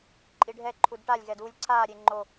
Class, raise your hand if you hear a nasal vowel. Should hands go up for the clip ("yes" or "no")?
no